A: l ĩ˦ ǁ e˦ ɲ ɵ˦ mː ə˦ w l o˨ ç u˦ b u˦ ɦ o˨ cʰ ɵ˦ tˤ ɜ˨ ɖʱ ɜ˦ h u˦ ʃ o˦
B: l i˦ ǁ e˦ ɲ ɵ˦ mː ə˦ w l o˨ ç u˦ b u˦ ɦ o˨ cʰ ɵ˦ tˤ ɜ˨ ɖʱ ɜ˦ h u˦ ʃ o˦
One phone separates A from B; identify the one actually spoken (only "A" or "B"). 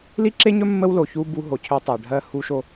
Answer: B